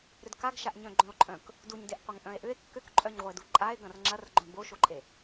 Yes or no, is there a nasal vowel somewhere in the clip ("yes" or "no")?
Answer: yes